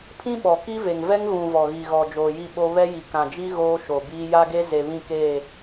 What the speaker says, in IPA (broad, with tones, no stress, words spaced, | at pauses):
pʰĩ˦ɓɔ˨ ki˦ve˨ŋ vɛ˦ŋɣũ˨ vɔ˨ɣi˨ɣɔ˨ d͡ʒoː˨ji˦˨ɓo˦ βɛ˦ ji˨kã˨d͡ʒi˦ ɣoː˦ʃo˨biː˦ ja˦ɡe˦ ze˨βĩ˦˨keː˦˨